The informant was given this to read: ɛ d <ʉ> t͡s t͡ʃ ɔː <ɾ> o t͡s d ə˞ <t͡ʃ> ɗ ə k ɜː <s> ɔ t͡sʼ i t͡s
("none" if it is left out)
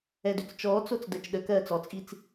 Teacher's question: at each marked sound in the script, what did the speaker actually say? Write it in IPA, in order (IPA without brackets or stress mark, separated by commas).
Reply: ø, t͡s, t͡ʃ, t͡s